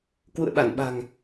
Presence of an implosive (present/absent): present